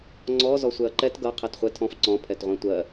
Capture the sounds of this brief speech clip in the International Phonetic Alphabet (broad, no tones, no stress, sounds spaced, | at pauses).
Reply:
ŋ͡ǀ ɔ z ɔ sʷ ɛ ɐ̯ ǃ ɛ t ɡ ʌ qʰ ɛ t χʷ ɛ tʰ ɔ̃ f ǀ ɔ̃ pʰ ɛ t ʁʷ ɛ̃ tʷ ɜ